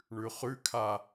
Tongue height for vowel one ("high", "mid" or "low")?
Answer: high